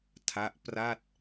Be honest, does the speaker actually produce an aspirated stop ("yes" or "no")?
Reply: yes